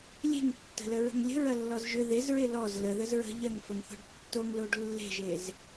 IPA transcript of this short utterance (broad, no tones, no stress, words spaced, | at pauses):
lʲe̤ŋtːə̤ləɹə̤ŋ lʲə̤ɹɐlːɔz ʒʏ ðezɹe lɔz ləðəz ɹə̤ ʎɐŋfəŋθɔ̤ɖ tːoŋloɖ lːe̤ʒez